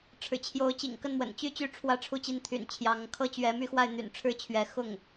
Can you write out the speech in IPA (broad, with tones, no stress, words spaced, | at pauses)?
ʈ͡ʂʰɻ̩˨˩t͡ɕʰjo˧˥ʊ̯ t͡ɕḭ˨˩ŋkə˥˩nmwə̰˨˩nt͡ɕy˥˩ t͡ɕy˥ʈ͡ʂʰwä˥ʈ͡ʂʰu˥˧t͡ɕi˥˩n t̪ʰy̰˨˩nt͡ɕʰjɑ˧˥ŋkʰɤ˥ t͡ɕɥɛ˧˥my˥˧xwa˥˩ɪ̯ n̪y̰˨˩nʈ͡ʂʰɻ̩˥˩t͡ɕʰɥɛ˧˥ xʊ˥˩ŋ